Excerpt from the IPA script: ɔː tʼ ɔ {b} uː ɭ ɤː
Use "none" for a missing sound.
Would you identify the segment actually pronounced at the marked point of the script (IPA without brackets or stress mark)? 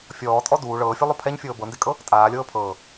d